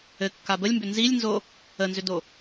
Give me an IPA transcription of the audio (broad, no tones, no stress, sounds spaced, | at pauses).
ɘ kː a b ə lʲ m b ʏ n z i lʲ n z o | ə n z ʏ d o